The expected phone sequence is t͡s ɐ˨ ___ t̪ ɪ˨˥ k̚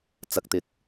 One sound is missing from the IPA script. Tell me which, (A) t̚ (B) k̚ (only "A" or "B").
B